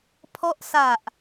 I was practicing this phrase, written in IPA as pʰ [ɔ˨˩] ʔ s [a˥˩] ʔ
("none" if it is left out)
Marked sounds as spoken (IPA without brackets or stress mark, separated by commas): ɔ˦˥, a˨˩